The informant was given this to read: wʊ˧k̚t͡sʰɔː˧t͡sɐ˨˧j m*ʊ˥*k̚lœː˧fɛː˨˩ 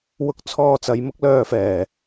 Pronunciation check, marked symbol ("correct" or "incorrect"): correct